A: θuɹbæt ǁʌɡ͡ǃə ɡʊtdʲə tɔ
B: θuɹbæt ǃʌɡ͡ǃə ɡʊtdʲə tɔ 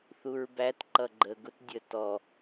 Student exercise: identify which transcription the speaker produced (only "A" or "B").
B